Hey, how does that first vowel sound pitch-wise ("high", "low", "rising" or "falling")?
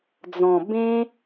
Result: low